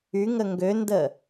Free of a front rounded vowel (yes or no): no